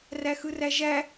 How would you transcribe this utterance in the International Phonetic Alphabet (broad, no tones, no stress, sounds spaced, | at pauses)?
r æ x ɯ r æ ʒ æ